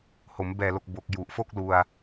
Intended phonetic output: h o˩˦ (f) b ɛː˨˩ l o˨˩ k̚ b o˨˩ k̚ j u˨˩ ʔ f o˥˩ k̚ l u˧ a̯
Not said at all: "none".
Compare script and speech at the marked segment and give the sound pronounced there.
m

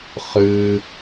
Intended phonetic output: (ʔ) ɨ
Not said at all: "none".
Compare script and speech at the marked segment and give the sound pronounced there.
χ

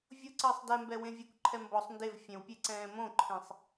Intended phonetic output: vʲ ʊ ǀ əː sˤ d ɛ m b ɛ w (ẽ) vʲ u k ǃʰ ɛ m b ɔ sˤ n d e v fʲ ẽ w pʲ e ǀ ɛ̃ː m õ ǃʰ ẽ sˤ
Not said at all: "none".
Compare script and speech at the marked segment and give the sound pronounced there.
ẽ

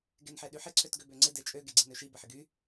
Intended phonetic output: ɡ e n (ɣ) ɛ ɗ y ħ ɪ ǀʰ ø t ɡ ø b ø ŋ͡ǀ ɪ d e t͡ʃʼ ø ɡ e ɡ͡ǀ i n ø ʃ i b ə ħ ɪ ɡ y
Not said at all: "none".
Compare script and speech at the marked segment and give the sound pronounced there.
ħ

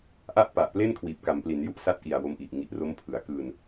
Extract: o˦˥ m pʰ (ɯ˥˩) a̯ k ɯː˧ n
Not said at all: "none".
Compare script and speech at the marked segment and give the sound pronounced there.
ɯ˩˦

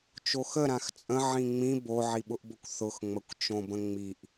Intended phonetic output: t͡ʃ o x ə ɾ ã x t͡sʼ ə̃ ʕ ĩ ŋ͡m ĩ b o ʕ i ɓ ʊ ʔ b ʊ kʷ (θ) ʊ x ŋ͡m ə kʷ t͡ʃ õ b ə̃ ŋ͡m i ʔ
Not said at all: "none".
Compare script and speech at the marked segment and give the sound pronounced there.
θ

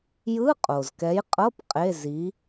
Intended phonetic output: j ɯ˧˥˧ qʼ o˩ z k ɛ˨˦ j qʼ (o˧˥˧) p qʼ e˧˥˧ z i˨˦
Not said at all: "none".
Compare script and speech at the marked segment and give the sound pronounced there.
ɤ˧˥˧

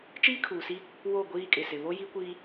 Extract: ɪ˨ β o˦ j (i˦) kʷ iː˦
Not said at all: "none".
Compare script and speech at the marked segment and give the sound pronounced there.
i˦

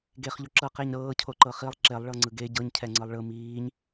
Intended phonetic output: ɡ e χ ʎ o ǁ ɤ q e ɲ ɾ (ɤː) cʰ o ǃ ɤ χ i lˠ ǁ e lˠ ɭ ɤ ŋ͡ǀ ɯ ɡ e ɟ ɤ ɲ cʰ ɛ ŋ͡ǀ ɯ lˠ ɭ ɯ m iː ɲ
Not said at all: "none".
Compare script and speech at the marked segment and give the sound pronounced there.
ɤː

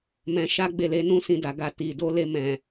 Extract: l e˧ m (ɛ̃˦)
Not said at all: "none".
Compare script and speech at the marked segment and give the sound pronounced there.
ɛ̃˨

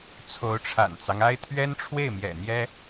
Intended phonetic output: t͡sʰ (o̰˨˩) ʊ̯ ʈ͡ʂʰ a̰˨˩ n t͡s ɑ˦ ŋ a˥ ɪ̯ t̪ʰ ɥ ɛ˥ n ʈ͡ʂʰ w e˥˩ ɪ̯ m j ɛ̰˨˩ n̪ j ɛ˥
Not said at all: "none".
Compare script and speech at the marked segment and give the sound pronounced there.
o˧˥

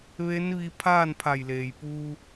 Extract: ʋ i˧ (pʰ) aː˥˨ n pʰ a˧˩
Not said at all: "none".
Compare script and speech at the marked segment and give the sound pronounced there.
pʰ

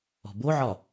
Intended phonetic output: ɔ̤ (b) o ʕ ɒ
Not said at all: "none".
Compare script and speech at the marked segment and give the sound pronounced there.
b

